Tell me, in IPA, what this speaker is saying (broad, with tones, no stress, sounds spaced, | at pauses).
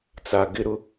t͡s a˨ ɡ ɪ˦ ɾ ʊ˦